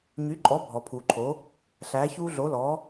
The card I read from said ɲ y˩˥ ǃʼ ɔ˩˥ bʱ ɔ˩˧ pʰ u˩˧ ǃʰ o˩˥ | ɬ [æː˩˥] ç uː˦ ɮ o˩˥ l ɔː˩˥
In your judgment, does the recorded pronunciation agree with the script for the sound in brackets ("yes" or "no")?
yes